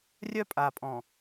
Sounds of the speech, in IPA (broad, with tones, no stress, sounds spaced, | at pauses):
rʲ œ˦ pʼ a˨ pʼ ɔ̃˨